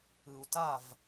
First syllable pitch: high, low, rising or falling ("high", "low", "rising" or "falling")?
low